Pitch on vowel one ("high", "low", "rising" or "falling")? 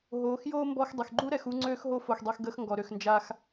rising